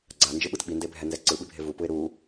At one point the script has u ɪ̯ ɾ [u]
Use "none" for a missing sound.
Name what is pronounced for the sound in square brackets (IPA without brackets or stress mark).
u